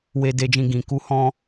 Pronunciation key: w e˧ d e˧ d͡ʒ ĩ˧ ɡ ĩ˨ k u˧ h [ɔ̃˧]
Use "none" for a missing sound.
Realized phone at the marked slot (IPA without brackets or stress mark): ɔ̃˧